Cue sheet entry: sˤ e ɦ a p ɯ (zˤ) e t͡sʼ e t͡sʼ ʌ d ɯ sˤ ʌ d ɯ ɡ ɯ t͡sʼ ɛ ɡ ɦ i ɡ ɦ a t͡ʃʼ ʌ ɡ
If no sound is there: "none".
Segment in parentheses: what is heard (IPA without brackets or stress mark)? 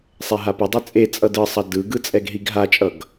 dˤ